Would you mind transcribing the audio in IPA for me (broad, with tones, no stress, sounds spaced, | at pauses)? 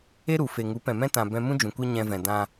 e˦ ɾ u˨ f e˨ ŋ u˨˦ p ɛ̃˨ m ɛ̃˦ t ã˨ b ɛ̃˧ m ũ˦ d͡ʒ ũ˨ kʷ e˦ ɲ ɛ̃˧ v ɛ̃˨ d ã˧